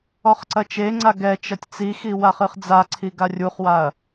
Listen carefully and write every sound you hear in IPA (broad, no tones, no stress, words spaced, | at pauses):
ɔχǀɐt͡ʃeŋ͡ǀa ɡɛ t͡ʃɐtʲt͡sixi waχɨχd͡zaǀʰi ɡarʲuχwaɐ̯